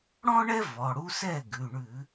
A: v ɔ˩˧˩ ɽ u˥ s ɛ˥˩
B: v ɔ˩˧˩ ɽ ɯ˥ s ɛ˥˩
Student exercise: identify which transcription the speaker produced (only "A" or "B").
A